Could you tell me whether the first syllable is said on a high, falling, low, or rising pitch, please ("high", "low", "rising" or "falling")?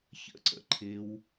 falling